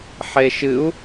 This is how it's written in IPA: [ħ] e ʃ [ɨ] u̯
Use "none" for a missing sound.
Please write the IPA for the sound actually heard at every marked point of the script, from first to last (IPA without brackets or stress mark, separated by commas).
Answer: ħ, ɨ